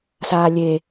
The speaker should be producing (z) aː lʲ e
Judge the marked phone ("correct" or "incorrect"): incorrect